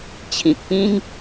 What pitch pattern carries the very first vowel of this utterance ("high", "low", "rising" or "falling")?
low